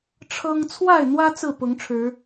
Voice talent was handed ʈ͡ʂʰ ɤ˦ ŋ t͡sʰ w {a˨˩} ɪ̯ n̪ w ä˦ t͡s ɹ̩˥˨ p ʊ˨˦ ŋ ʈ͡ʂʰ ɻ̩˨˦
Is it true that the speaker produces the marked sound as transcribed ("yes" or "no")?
no